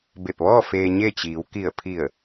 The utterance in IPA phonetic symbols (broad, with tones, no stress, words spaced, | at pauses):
be˧˩p̚ʋɔː˥˨ feː˧ɲe˥˨t͡ɕiː˩˧w ki˧˩ə̯pʰi˧˩ə̯